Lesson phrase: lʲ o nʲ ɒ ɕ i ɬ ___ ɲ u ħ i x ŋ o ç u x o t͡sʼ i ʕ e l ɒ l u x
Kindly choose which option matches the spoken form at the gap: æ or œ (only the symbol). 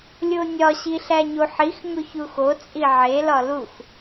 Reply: æ